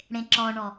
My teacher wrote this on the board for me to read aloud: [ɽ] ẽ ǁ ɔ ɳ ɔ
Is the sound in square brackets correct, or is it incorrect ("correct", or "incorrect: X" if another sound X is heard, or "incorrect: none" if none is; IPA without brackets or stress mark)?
correct